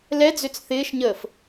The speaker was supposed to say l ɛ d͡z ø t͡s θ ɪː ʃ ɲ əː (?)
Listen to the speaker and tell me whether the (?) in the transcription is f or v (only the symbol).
f